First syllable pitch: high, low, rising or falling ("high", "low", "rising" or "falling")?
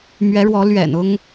rising